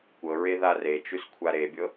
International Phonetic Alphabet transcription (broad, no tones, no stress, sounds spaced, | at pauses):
kʷ ɤ ɹ e ð a r e t͡ʃ ʉ s kʷʰ a ɾ e bʲ ɤ